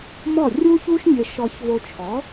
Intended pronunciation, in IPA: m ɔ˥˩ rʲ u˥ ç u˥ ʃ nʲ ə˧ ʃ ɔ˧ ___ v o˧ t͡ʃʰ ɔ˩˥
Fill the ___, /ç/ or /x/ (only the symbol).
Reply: ç